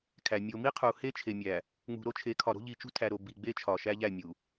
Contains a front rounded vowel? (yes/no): no